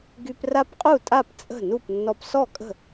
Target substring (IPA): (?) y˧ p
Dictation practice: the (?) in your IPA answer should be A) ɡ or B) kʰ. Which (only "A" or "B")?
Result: A